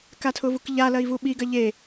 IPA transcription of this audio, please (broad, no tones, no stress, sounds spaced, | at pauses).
k a tʰ ʊ v u k ʎ a l ɐ i̯ v u ɓ i ɡ ɐ ʎ e